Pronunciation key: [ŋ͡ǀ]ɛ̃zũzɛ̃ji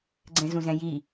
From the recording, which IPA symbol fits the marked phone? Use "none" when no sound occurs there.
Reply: ɡ͡ǀ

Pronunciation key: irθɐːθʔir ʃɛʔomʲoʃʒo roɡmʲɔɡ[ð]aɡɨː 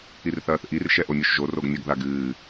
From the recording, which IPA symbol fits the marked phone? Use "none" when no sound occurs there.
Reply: ð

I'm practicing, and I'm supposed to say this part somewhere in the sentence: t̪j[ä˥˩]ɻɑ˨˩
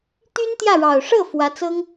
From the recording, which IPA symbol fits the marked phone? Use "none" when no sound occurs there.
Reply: ä˥˩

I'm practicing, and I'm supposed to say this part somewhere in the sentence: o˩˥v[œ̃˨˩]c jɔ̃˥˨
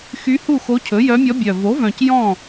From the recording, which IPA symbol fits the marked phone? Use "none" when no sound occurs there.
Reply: œ̃˨˩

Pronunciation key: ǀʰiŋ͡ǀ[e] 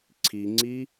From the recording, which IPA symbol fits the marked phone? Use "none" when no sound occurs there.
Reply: i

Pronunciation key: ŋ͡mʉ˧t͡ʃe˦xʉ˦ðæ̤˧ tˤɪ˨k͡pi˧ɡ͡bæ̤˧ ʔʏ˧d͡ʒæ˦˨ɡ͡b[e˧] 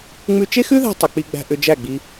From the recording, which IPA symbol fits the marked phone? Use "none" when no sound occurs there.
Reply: i˧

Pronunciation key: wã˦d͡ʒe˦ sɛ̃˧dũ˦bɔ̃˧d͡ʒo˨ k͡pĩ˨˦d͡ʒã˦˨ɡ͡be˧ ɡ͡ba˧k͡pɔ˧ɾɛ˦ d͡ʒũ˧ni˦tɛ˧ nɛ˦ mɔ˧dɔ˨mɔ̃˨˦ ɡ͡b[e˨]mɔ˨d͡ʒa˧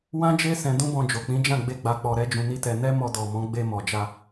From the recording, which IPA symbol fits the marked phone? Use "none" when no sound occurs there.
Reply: e˧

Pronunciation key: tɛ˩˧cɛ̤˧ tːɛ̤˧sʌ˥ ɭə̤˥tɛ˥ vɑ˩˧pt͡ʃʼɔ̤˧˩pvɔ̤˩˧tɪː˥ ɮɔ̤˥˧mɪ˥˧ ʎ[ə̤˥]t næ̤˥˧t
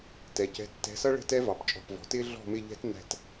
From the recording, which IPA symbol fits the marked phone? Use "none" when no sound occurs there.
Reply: ɛ̤˥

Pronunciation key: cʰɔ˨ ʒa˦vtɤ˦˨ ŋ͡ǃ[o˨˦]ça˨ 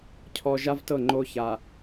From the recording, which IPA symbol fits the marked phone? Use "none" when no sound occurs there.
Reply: o˦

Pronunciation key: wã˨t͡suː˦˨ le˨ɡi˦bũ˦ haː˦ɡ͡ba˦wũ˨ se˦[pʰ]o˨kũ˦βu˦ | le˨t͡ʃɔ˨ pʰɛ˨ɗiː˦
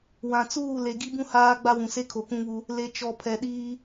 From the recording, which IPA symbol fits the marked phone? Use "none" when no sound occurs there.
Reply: kʰ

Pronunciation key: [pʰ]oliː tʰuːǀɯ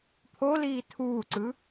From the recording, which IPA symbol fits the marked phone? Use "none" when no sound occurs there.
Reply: pʰ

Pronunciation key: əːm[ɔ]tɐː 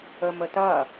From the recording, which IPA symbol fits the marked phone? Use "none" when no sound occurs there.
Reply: ə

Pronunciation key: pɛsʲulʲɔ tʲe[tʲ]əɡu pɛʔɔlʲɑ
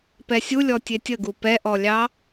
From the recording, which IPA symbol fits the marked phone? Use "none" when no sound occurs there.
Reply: tʲ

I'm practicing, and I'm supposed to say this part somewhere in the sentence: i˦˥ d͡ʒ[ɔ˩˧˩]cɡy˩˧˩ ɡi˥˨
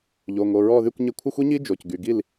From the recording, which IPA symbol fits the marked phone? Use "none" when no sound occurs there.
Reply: o˩˧˩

